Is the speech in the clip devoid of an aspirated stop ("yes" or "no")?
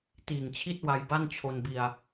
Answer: no